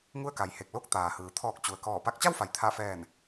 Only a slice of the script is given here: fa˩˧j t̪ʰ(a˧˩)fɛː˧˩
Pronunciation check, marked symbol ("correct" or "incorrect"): correct